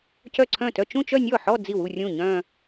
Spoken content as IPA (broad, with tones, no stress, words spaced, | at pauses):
cœ˥˩ǀʰœ̃˥˩tœ˥˧ t͡ʃũ˥˧t͡ʃœ˥˧nʲɔ˥˩ħɔ˥˧ d͡zi˥˩wu˥˧ rʲũ˥˩ ɲœ̃˥˧